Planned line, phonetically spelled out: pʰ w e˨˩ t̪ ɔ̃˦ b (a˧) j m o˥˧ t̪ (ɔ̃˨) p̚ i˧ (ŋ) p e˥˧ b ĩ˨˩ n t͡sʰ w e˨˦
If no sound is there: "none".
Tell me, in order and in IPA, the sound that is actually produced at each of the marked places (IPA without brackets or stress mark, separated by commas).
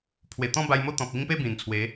a˧, ɔ̃˨, ŋ